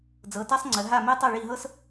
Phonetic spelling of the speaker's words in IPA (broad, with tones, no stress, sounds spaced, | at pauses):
d͡z ɤ˩˧˩ t a˥ sˤ ŋ͡ǀ ə˩˧ ɦ a˥˩ m ɛ˥ tˤ ɤ˥˩ ɭ i˥˩ ɦ ɤ˥ s